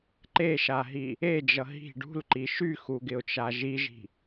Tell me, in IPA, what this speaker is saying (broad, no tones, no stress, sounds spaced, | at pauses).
ǃ e ʃ a ɦ i | e d͡ʒ ʌ ɦ i̤ ɖ ṳ l ǃ i ʃ y x u ɡ ɪ ʊ̯ t͡ʃ a ʒ i ʒ i̤